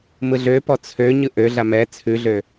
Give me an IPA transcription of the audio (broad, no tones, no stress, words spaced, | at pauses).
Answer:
mɯɮøpɔ t͡sʰø ɲɯʔøɮa mɛ t͡sʰʉɮø